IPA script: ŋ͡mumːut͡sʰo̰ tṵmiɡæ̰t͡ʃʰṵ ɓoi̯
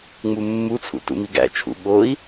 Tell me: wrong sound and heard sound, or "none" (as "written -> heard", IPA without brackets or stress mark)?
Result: o̰ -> ṵ